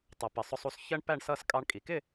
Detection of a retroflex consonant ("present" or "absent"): present